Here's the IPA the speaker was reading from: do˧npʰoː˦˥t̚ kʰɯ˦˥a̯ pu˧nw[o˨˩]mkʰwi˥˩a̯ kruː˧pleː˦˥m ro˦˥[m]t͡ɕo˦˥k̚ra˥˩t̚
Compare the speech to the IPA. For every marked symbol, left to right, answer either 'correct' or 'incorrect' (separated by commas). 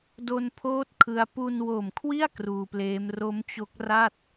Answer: correct, correct